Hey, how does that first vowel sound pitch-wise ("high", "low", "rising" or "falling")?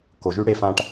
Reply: low